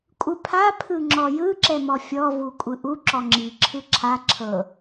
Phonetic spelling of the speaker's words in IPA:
kʷʼ ɯ pʰ a pʰ ɯ ŋ͡ǁ ɔ j ɯ ǁ ɛ m ɔ fʲ ɔ v u kʷʼ ɯ ʔ u ǁ ɔ ŋ͡ǁ i ǁʰ ɯ ǁʰ a ǁʰ ɤ

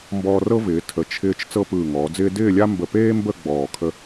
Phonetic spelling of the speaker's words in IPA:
m b ɔː˧ r ɤ˥ v ɪː˩˧ tʰ ə˩˧ t͡ʃʰ ɪː˧ t͡ʃ t͡s ɤ˥ p ɯː˧˩ ŋ ɔː˩˧ d͡z ɪː˥ d ɪː˥˧ lʲ a˥ m b ə˧˩ p eː˥ m b ə˥˧ ɡ͡b ɔː˧˩ kʰ ə˥

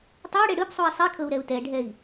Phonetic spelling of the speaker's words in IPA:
tˤ ɤ u̯ ɽ e ɽ ɯ p sˤ u i̯ sˤ i kʰ ɤ u̯ ɾ ɛ u̯ t ɛ ɖʱ ɛ i̯

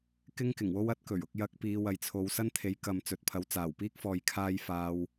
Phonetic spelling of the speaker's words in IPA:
k ɪ˥ ŋ k ɪ˨˩ ŋ w o˥ w ɐ˥ t̚ k ɵ˨˩ ɥ ʊ˧ k̚ j ɐ˧ k̚ p iː˨˧ w ɐ˨ j t͡sʰ o˨˧ w s ɐ˥ n t̪ʰ e˨˥ j k ɐ˨ m t͡s ɵ˨ t̚ pʰ ɐ˨˥ w t͡s aː˨˩ w p iː˥ k̚ f ɔː˨ j kʰ aː˧ j f aː˨ w

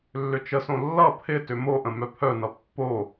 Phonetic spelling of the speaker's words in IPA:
lː ʏ t͡ʃ ə s õ lː ʌ pʰ ɪ t ʏ m o ʔ ə̃ m œ pʰ œ n ʌ pː o

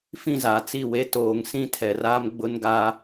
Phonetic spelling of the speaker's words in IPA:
f ĩ˦˨ z a˨ t͡s i˦˨ w e˦ t oː˨ ŋ s ĩ˦ tʰ ɛ˨ r aː˦ m ɡ͡b ʊ˦ n ɡ a˦

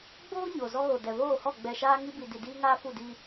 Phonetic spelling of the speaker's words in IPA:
ɡ͡b oː˦ ɲ o˨ z ɔ˦ ɣ o˨ d ɛ˨ β oː˦˨ h ɔ˦˨ ɡ͡b ɛ˨ ʃ aː˦ ŋ i˦ b i˨ d i˨ d iː˦ ŋ aː˦ f u˦˨ d i˦

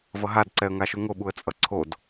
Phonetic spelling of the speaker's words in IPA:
v ʌ ɦ a d ǀ ɛ ə̯ ŋ a ʃ u ŋ o ɓ u ə̯ t͡sʼ ʌ ǀʰ o d

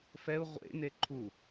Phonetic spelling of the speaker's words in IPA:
f ɛ u̯ ʁʷ ḛ n e ǃʰ u

